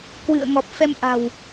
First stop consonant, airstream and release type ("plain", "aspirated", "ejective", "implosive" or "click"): plain